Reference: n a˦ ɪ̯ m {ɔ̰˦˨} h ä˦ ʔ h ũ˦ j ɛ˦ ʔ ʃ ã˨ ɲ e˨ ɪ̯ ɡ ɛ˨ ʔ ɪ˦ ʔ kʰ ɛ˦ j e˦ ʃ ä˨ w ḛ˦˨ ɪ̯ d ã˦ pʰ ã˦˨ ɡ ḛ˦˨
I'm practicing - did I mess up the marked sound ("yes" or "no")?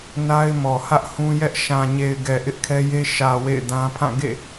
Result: yes